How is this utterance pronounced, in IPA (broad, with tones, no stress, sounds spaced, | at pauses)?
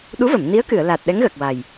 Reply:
ɗ u˧˥ v ə˨˩˨ m n i˧˥ ə̯ k ɨ˨˩˨ ə̯ l a˨˩ t̚ ɗ ɛ˧˥ ŋ ɣ əː˨˩ k̚ w a˨˩ j